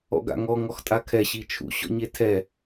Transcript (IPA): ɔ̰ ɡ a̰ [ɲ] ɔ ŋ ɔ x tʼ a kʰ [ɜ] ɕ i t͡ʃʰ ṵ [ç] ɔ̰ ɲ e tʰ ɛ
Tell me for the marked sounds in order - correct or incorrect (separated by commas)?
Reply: incorrect, incorrect, incorrect